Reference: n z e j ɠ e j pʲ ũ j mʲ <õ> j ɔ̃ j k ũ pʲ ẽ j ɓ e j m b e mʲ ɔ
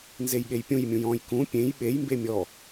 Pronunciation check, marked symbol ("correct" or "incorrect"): incorrect